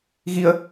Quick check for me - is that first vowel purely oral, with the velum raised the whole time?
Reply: yes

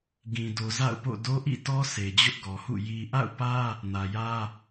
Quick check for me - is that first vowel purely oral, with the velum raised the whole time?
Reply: no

